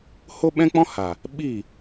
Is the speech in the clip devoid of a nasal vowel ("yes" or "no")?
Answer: no